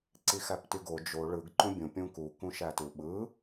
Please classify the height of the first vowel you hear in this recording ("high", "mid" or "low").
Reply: high